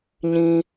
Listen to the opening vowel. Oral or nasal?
nasal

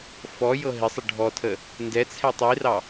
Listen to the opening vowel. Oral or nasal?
oral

